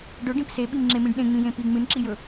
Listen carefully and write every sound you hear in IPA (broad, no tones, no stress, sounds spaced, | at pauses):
ɖ ɵ ɖ ĩ p s e ɓ i m ŋ͡ǁ e m ĩ ɖ ɗ ẽ ŋ͡m ĩ j ẽ p i ŋ͡m ɨ n ǁ i j ɵ